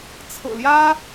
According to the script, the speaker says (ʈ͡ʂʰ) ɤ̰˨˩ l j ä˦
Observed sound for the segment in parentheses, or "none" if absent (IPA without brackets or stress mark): t͡sʰ